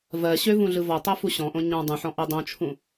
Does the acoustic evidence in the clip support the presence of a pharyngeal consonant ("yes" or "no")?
yes